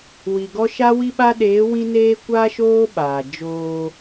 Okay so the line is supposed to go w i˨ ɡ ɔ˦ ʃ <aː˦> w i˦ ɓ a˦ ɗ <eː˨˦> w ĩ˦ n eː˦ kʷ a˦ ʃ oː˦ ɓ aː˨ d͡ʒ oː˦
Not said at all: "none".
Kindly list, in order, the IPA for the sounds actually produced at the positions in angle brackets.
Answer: a˦, eː˨˦

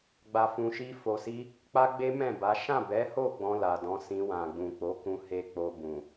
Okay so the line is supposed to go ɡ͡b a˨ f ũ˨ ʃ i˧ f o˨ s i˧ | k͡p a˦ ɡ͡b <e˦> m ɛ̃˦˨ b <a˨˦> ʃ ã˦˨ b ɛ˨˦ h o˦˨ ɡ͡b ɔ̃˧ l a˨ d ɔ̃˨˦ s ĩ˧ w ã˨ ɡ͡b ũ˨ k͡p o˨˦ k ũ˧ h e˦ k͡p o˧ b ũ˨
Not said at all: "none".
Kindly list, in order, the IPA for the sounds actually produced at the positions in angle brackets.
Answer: e˦, a˨˦

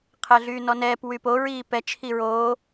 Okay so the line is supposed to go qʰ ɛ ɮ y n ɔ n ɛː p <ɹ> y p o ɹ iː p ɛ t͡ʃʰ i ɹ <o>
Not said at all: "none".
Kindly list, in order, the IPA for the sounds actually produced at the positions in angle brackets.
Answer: w, oː

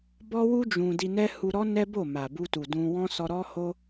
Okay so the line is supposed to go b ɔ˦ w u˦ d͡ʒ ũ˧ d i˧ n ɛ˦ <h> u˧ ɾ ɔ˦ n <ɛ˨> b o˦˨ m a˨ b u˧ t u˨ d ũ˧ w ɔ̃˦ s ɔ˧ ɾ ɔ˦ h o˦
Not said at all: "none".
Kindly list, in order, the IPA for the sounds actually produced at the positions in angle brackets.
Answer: h, ɛ˦

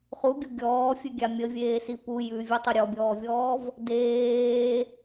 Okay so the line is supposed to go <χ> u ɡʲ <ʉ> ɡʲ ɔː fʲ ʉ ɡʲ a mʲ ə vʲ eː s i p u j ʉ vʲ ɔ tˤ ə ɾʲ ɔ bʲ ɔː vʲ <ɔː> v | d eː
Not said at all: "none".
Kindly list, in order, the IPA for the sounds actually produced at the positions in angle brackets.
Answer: χ, u, ɔː

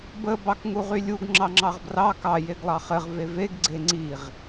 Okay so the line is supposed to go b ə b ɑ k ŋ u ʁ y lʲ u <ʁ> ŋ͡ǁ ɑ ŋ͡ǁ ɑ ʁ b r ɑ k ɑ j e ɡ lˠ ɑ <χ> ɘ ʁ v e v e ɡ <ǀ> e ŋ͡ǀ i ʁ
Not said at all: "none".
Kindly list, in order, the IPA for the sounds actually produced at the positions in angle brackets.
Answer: ɡ, χ, ɡ͡ǀ

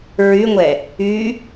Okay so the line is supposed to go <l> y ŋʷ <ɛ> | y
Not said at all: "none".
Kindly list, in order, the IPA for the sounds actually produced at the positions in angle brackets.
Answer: ɹ, ɛ

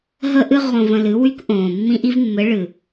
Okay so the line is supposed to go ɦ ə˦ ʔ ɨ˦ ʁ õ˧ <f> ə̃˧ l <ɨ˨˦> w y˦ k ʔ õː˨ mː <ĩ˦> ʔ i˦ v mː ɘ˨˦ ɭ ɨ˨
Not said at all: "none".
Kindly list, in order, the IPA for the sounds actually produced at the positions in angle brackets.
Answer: v, ɨ˨˦, ĩ˦

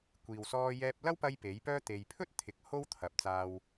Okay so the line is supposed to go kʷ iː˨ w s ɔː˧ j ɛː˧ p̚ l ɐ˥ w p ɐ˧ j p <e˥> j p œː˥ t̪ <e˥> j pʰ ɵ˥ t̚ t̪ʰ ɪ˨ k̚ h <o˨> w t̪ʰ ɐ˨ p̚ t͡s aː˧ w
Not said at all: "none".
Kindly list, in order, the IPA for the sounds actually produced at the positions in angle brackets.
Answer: e˨˥, e˨, o˥

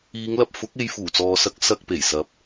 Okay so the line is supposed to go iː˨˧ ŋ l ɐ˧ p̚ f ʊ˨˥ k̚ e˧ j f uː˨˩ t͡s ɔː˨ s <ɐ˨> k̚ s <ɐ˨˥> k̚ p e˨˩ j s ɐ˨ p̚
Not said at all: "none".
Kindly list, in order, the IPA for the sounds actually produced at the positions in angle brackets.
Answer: ɐ˨˥, ɐ˧

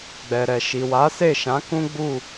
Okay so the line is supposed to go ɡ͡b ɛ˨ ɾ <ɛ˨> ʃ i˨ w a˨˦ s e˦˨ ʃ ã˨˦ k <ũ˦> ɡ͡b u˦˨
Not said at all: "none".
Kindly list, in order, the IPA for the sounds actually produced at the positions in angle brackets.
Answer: ɛ˨, ũ˦

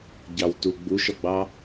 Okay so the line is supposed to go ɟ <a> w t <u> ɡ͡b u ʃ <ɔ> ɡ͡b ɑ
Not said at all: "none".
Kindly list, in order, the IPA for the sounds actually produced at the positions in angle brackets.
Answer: ɑ, u, ɔ

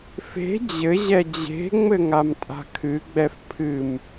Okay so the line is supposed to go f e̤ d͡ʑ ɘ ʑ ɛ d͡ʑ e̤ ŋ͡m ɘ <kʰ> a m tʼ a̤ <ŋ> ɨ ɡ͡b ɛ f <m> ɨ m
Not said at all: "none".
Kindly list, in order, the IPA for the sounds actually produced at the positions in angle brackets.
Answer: ŋ, kʰ, pʰ

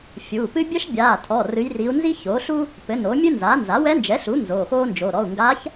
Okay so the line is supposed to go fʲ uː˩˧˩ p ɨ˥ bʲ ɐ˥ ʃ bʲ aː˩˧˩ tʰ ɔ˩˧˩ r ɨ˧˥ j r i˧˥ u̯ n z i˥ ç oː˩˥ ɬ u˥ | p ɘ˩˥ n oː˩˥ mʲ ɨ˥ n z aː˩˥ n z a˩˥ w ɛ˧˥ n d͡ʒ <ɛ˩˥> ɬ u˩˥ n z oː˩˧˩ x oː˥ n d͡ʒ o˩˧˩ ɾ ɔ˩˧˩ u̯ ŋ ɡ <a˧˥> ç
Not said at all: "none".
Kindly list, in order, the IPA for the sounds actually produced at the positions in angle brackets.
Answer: ɛ˩˥, a˧˥

